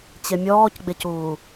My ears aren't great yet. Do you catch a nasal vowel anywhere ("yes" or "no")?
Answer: no